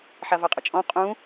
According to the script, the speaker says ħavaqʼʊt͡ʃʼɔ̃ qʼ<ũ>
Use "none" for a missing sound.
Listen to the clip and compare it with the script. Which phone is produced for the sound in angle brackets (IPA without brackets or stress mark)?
ũ